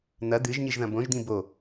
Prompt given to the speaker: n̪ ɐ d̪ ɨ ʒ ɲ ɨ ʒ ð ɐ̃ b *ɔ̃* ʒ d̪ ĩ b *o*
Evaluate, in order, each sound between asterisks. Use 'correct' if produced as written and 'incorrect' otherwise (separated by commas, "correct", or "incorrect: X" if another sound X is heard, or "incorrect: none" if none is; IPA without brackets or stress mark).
incorrect: õ, correct